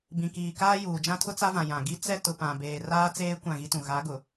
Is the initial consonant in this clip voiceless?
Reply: no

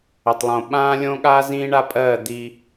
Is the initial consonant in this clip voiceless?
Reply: yes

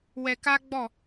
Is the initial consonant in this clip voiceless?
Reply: no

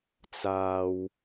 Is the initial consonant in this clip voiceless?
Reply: yes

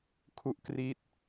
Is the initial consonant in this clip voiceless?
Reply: yes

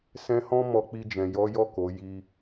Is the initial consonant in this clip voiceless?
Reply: yes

